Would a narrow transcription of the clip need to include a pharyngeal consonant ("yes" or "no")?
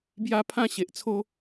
no